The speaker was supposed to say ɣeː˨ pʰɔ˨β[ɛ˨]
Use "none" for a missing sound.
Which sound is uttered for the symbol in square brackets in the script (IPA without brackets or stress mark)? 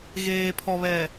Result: ɛ˨